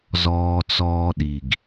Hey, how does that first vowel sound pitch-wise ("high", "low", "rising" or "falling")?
low